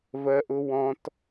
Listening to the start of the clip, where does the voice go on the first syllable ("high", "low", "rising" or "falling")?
high